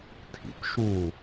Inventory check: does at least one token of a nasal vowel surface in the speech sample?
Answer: yes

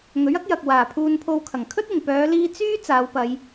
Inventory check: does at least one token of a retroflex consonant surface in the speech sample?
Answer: no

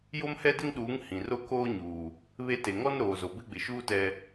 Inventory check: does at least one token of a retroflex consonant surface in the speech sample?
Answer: no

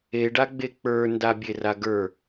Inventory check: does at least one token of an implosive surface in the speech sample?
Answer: no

